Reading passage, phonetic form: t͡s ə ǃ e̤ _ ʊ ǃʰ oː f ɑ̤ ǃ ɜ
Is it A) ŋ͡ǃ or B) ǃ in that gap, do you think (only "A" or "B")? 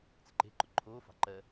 B